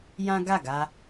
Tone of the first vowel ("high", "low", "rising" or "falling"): high